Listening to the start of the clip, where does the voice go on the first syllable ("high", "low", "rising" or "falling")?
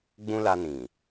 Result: high